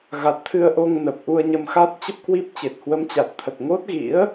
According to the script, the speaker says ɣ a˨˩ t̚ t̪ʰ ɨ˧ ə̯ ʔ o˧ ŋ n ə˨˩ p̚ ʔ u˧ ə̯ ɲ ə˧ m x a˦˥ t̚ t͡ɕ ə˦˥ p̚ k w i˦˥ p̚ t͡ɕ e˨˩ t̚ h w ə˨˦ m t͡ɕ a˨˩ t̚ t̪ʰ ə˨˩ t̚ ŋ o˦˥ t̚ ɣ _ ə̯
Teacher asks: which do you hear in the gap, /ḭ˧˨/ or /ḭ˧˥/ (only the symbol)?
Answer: ḭ˧˥